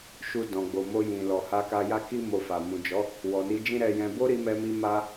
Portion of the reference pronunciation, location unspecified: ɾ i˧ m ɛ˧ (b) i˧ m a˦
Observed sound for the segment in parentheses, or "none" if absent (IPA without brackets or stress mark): m